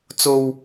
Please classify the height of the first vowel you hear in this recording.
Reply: mid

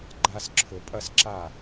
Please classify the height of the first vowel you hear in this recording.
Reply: low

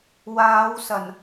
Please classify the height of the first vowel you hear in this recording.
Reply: low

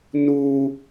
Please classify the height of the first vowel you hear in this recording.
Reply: high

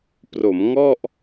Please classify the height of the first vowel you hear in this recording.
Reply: mid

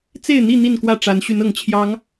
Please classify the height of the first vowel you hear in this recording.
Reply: mid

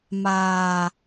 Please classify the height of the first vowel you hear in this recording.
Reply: low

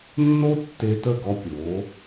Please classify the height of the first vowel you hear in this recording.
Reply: mid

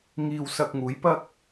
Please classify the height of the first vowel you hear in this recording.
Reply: high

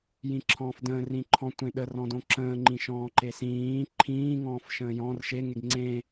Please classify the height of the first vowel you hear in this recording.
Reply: high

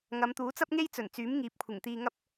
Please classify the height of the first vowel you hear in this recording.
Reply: low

